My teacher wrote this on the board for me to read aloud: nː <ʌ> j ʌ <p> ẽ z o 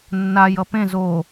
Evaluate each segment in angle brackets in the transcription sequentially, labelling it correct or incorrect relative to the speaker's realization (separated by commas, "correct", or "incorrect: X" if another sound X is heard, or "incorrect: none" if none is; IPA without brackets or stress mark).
incorrect: a, correct